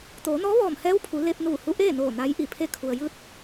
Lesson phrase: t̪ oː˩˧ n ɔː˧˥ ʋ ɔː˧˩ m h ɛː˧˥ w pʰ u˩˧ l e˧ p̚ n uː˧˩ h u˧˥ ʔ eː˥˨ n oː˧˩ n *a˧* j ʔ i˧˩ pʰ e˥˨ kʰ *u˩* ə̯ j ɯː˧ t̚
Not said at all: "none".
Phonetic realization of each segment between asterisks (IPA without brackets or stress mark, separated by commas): a˧˥, u˩